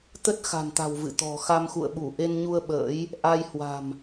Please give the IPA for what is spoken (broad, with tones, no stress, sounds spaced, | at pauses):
t̪ ə˦˥ t̚ x a̤˨˩ n t̪ a̤˨˩ w v ɨ̰˧˨ t̪ ɔ̤˨˩ x a˧ m x ṵ˧˨ ə̯ ɓ u˧˩ ʔ e˧ n ɲ u˧ ə̯ ɓ ə̰ː˧˥ j | ʔ a˧ j h w a̤˨˩ m